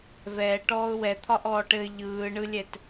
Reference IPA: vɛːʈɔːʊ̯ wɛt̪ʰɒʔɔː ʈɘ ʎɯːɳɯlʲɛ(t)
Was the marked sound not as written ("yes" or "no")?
no